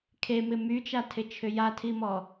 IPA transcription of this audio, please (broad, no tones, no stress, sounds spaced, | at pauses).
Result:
kʰ e m ɪ m y t͡ʃ a tʰ ɪ t͡ʃʰ ʏ j a tʰ i m ɔ